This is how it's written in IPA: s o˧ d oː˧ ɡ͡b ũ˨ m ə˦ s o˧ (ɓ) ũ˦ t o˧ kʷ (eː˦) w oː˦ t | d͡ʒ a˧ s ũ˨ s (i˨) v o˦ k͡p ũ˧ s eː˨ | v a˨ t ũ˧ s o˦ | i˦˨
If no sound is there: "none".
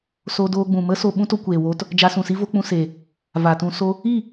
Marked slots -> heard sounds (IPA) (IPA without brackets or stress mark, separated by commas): ɓ, eː˨, i˦